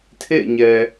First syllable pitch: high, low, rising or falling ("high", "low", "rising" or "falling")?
falling